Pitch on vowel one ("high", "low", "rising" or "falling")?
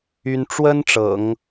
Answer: high